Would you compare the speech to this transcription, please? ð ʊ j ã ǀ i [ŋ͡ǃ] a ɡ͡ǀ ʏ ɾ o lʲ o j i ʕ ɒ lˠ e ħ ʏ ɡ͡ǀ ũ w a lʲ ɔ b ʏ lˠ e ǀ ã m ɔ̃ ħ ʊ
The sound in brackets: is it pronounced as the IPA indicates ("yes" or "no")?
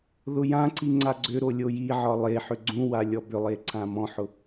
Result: no